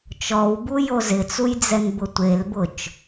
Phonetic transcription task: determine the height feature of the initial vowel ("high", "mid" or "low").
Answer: mid